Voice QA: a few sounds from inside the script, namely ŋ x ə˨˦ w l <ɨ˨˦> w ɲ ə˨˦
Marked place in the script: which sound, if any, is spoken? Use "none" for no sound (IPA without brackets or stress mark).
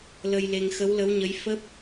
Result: ə˨˦